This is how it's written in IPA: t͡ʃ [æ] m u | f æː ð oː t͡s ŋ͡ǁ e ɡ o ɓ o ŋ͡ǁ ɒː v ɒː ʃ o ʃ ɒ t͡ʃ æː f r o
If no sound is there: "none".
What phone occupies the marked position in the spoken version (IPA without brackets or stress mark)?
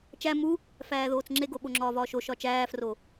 æ